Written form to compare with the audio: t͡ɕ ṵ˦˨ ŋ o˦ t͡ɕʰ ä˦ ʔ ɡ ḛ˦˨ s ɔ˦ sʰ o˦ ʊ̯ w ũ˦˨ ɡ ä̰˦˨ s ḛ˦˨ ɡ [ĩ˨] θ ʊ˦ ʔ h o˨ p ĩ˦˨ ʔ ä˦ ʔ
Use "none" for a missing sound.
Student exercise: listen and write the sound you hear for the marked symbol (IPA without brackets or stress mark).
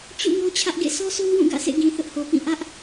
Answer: ĩ˨